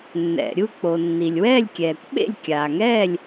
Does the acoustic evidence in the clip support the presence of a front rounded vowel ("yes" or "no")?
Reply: no